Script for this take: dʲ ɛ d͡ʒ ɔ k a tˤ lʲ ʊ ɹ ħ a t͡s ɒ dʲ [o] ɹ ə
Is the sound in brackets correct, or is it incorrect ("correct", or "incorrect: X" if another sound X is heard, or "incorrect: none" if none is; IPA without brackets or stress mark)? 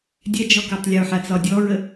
incorrect: ɔ